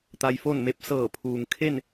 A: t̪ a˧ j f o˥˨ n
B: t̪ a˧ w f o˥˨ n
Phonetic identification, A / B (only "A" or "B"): A